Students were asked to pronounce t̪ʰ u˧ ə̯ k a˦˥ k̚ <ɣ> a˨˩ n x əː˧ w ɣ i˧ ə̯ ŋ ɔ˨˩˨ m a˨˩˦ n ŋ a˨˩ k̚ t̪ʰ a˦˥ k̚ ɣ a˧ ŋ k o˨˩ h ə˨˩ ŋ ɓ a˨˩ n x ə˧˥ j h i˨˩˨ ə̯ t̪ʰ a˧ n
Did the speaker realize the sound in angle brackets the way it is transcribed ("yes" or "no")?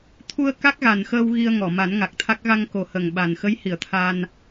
yes